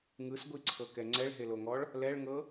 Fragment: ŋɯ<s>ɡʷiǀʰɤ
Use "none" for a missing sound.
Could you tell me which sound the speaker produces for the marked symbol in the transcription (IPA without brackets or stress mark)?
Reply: s